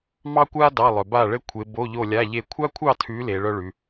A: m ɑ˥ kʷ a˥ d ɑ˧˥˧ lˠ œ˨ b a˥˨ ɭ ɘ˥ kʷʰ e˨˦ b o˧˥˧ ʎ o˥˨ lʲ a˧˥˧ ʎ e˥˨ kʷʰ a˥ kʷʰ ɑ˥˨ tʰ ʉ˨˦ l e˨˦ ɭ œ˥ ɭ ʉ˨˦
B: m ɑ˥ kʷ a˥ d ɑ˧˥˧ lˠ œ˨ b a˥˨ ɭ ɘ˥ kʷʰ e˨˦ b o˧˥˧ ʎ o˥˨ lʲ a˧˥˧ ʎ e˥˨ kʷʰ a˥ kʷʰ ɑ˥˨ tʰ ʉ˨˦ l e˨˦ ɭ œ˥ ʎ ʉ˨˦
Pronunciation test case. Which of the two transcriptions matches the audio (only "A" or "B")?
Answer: A